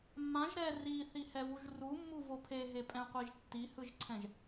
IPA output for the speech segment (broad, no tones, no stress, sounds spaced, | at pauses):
mː ã ʒ ɾ ɛ r i θ i h ɛ v u ʒ r u mː u v o pʰ e ɦ e pʼ ɛ̃ qʷ i ʒ tː i h ɯ ʒ ǀʰ ɛ̃ ʒ